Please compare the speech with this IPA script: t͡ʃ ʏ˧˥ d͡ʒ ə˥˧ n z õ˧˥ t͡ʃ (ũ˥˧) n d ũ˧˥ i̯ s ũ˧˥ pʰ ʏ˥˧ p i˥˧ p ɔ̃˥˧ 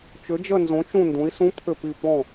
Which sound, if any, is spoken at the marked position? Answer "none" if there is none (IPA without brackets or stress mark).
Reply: ũ˥˧